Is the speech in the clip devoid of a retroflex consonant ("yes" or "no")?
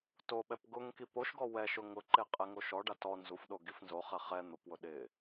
no